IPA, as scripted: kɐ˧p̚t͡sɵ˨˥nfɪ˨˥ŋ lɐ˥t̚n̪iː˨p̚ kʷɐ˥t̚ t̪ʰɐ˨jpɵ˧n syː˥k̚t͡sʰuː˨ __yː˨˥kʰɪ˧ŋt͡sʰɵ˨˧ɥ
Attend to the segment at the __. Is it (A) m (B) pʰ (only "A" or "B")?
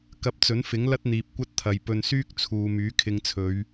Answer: A